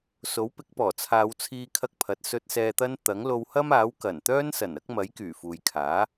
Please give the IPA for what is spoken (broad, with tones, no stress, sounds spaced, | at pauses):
s o˨˥ w p ɪ˨˥ k̚ p ɔː˨˩ t͡sʰ aː˨˧ w t͡sʰ iː˧ kʰ ɐ˧ k̚ pʰ ɐ˨ t̚ s ɵ˥ t̚ s ɛː˧ t̪ ɐ˥ n t̪ ɐ˨˥ ŋ l o˧ w h ɐ˥ m aː˨˥ w k ɐ˨˩ n t̪ œː˥ n s ɐ˨˩ n ɐ˥ k̚ m ɐ˨˥ j k yː˨˩ f uː˨ j kʰ aː˨˥